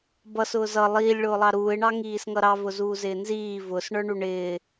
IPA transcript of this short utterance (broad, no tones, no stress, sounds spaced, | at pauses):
b ʌ s ʊː z ʌ lˠ iː lʲ ɭ ʊː lˠ ɑ ɾ uː ɪ̯ ɳ ɑ ŋ iː s ŋ ʌ ɾ ɑ v ʊ z uː z ɪː n z iː v ʊ s ɳ ə˞ ɳ u ɳ ɪː